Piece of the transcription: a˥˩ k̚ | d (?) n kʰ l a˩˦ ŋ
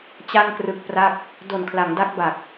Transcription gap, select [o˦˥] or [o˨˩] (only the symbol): o˨˩